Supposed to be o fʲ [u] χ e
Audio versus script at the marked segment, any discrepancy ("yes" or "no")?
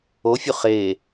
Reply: no